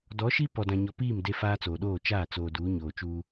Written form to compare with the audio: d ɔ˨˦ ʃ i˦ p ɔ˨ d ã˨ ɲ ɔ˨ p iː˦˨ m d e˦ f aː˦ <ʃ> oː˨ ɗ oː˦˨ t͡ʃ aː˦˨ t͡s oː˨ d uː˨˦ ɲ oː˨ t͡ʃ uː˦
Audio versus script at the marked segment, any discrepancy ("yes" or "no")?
yes